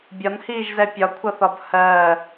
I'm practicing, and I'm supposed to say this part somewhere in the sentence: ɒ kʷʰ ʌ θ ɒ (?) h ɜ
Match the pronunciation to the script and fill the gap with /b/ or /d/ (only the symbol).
b